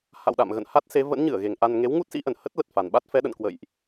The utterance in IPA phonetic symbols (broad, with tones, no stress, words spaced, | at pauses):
ha̰˧˨wɗa̰˧˨mɣə̰˧˨n ha˦˥t̚se˨˦ və̰˧˥nɲɨ˧˩ə̯ɣe˨˩ŋ ʔa˧n ŋe˨˦wŋu˦˥t̚sḭ˧˥ʔə˧˩n hə˦˥t̚lə˨˩t̚ fa˨˩nɓa˦˥t̚ fɛ˨˦ɗə̰˧˨nkwə̰˧˨jʔ